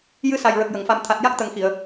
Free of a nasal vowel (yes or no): yes